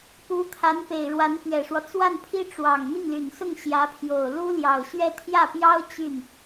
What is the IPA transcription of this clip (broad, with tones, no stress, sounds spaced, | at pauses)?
p u˧˥ t̪ʰ a˧˥ n p e˨˩ ɪ̯ ɻ w a˧˥ n p ɥ ɛ˨˩ ʂ w ɔ˦ t͡s w a˥˩ n pʰ i˥ ʈ͡ʂ w ɑ˨˩ ŋ n̪ i˥˩ ŋ l y˨˩ n s ʊ˥˩ ŋ ɕ j ä˧˥ pʰ j o˨˩ ʊ̯ l u˥ l j ɑ˨˩ ʊ̯ ɕ ɥ ɛ˥˧ t̪ʰ j ä˥˩ p j ɑ˥ ʊ̯ t͡ɕ y˥˩ n